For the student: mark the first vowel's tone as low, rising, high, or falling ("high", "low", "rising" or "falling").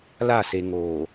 falling